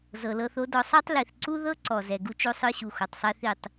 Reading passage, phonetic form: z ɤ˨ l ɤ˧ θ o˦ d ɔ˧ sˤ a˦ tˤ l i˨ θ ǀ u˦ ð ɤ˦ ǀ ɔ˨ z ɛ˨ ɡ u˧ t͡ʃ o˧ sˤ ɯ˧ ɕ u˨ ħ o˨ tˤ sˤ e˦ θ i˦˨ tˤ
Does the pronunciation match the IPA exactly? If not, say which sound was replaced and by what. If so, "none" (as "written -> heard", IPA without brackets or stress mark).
ħ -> x